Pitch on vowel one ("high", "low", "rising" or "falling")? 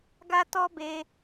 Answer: high